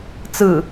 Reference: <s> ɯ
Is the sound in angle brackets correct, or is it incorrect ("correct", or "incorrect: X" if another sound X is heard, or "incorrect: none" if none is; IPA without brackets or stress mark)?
incorrect: t͡s